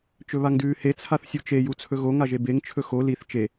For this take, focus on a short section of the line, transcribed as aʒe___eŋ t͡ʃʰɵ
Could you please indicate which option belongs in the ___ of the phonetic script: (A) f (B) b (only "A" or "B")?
B